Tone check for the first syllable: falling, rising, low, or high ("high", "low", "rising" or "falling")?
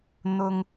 low